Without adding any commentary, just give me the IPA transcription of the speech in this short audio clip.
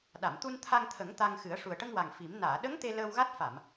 ɗ a˨˩˨ m t̪ u˧ n t̪ʰ a˧ ŋ t̪ʰ ə˨˩˦ ŋ t̪ a˧ ŋ x ɨ˨˩˦ ə̯ ʂ u˨˩ ə̯ ʈ ə˧ ŋ w a˨˩ ŋ f i˨˩˦ m n aː˨˩˨ ɗ ə˧˥ ŋ t̪ e˧ l əː˧ w ɣ a˦˥ t̚ f a˨˩˨ m

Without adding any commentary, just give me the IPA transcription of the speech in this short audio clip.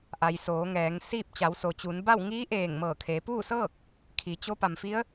ʔ a˩ j s oː˩˧ ŋ ɛː˩˧ ŋ s iː˥˨ p̚ t͡ɕ a˩˧ w s o˩ t͡ɕ u˩˧ n b a˥˨ w ŋ iː˧˥ ʔ eː˧˩ ŋ m ɤː˧˩ kʰ eː˩˧ p uː˥˨ s ɤː˥˨ k̚ | kʰ i˩ t͡ɕ o˧˥ p a˩ m f i˧˥ ə̯

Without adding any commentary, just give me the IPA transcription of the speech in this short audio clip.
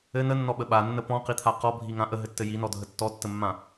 ɘ n ə nː ɔ ɓ ə ɓ a nː ə p ɔ̃ q i t̪ʰ a q ɔ bʱ i ŋ ã ʔ ə ɦ ɘ tː ɘ j i n ɔ dʱ ə tː ɔ tː ə mː ã

